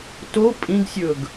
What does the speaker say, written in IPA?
t o pʼ ĩ ɡ sʲ ɵ ɡ

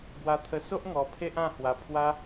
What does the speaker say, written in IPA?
b w a˧ t̪ʰ ə˧ s o˦ ʔ ŋ ɔ˧ pʰ e˦ ʔ ã˥˧ h w a˧ pʰ w a˦

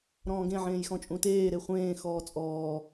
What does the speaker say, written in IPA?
ɾ ɔ̃ː ɡ ẽ ʕ ẽː j x ɔ̃ t͡ʃʼ ũ t eː ɾ e χʷ ẽː x ɔː t͡sʼ ɔː

